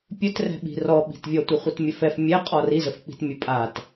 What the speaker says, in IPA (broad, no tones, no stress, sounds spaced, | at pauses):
pʲ ɵ t r ɛ̤ ɓ i̤ r ɔ ɓ i̤ t vʲ ɔ tʷ i χʷ i t mʲ ə f ɛ f mʲ ɛ qʼ ɔ r i z ə f k͡p i̤ t mʲ ə pʼ a t